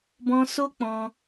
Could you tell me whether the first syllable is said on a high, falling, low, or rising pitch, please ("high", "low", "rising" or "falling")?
high